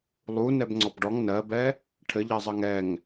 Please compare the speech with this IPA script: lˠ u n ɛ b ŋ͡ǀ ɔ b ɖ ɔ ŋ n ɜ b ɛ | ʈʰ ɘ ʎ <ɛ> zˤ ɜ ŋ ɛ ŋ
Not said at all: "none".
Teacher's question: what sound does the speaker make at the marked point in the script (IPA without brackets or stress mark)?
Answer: ɜ